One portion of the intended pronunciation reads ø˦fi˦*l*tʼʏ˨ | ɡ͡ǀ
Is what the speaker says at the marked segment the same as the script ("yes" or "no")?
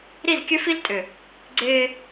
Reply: yes